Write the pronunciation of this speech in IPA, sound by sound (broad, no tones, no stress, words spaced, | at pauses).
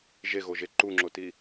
ʒeɣoʒe ǃuŋ͡ǁoti